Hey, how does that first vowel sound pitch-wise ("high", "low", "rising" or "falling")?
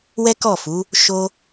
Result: high